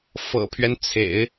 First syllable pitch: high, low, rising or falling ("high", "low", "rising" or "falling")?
low